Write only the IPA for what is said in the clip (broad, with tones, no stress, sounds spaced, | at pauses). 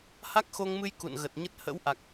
h a˦˥ k̚ x o˧ ŋ m ɨ˧ j k ṵ˧˨ n ɣ ə˨˩ t̚ ɲ ə˦˥ t̚ h ə̰˧˥ w ʔ a˨˩ k̚